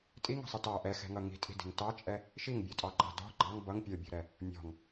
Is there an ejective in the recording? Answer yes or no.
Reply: yes